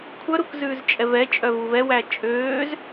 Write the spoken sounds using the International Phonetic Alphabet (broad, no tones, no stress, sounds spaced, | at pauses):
kʷʰ œ ɾ u k z ʉː z t͡ʃʼ ɛ v ɛ t͡ʃʼ œ v u v ɛ w æ t͡ʃʼ øː z